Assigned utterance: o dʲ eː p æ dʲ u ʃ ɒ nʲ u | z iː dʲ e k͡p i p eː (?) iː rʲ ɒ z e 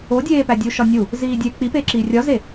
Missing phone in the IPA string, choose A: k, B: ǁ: B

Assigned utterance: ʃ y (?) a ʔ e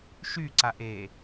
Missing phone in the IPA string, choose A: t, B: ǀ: B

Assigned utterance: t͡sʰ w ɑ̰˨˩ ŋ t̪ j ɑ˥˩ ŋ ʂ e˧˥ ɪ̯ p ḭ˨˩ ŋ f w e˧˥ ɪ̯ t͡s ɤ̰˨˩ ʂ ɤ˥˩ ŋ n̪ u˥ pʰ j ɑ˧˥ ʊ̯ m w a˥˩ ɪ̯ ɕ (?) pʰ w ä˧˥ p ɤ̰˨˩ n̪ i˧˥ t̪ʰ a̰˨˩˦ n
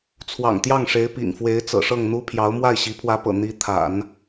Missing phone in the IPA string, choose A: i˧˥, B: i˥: A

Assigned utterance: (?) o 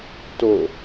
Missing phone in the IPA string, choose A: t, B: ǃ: A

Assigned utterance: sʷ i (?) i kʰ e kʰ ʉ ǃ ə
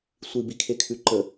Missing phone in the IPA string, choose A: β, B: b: B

